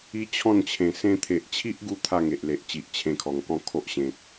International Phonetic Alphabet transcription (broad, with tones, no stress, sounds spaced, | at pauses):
i˦ t͡ɕʰ ɔ̃˥˧ n t͡ɕʰ ẽ˨˩ s ẽ˧ t̪ʰ e˨ ʔ t͡ɕʰ i˦ ʔ ɡ u˧ t̪ʰ a˥˧ ŋ e˨ ʔ l e˨ ʔ t͡ɕ i˨ ʔ t͡ɕʰ ẽ˧ kʰ ɔ˨˩ ŋ k ɔ̃˥˧ kʰ o˦ ʔ ɕ ẽ˨ t̚